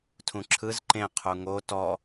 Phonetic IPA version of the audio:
tʰ ũ ǁʰ ɯ z ǃ ẽ qʰ u ŋ o t ɔ

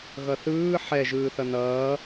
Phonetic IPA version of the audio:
ɣ ʌ θ ɯː ħ ɛ ʒ ɯː θ ʌ n ʌː

